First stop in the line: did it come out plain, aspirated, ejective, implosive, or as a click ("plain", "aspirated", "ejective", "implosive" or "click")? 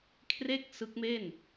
aspirated